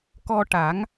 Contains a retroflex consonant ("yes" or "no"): yes